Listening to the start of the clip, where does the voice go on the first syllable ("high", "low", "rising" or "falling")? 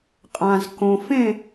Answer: low